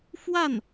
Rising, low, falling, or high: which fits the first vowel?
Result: falling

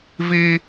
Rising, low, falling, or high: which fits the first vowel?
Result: high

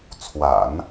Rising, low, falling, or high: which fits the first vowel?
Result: low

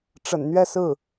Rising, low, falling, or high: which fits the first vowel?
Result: low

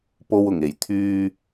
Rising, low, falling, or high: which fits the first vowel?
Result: low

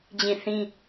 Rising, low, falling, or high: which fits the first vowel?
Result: falling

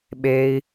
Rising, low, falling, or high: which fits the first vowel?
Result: low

